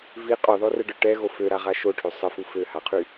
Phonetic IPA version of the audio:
v i qʼ ɔ ð ɔ r ə ɖ œ ʈ ɛ ɣ o f ø ɾ a ʁ a ʃ o ʈʰ ø sˤ ə f u f ø h a qʰ y

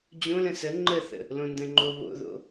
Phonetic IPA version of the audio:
d͡ʑ õ l ə̃ s ə ŋ͡ǃ ə θ ə̰ | l õ n d ə̃ ŋ͡ǃ o β o̰ ð o̰

